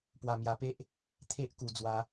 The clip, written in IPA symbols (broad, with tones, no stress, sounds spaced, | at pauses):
p w a˨˩ m j a˨˩ p e˦ ʔ | t̪ʰ e˦ ʔ k u˨˩ d͡z w a˦